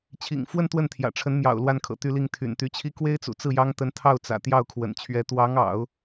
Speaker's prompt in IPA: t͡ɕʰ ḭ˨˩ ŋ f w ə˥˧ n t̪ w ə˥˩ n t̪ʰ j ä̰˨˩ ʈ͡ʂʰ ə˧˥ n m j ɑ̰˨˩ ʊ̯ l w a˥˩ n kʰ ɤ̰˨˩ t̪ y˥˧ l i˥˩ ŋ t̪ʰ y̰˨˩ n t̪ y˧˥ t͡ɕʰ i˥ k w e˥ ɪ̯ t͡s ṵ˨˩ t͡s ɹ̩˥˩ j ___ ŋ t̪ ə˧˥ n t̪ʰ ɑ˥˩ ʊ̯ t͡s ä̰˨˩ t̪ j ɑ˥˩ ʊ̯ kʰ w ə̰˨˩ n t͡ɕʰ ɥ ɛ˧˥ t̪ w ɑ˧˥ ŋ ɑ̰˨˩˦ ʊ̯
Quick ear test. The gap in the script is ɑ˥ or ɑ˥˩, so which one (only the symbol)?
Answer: ɑ˥